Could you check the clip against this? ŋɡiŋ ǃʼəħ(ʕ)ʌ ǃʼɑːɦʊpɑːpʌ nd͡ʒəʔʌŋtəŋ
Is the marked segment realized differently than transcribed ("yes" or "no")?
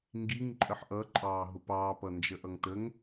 yes